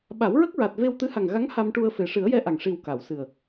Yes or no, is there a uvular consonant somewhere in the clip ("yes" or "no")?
no